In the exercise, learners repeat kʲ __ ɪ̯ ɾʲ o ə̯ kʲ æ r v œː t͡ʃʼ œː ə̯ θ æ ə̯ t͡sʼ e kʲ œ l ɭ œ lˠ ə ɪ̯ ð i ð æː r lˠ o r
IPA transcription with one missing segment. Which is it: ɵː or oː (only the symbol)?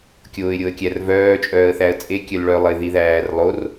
oː